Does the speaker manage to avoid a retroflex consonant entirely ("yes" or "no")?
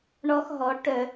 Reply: no